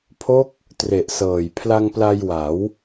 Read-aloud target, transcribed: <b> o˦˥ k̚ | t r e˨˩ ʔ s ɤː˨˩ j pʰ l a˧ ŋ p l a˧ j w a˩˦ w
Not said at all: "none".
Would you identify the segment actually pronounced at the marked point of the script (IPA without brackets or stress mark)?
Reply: pʰ